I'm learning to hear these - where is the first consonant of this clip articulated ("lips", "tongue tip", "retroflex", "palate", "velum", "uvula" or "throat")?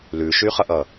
tongue tip